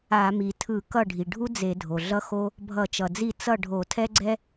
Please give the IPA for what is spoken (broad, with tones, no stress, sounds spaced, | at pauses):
a˧˩˧ m i˩ tʰ ɯ˧˩˧ k ʌ˥˩ ɖʱ i˩ ɖʱ u˥ d͡z e˧˩˧ dʱ o˩ ɮ ʌ˥ x o˥ | bʱ ʌ˧˩˧ t͡ʃ ʌ˩ d͡z i˥˩ t͡s ʌ˥˩ ɖʱ o˧˩˧ tʰ ɛ˥ ɡ͡ǀ ɛ˥